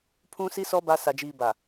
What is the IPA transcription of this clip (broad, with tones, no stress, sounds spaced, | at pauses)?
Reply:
pʰ ũ˦ s i˦ s ɔ˦ b a˦ s a˨ d͡ʒ iː˨ b a˨